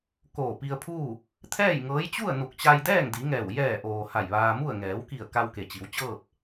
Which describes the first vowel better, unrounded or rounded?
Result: rounded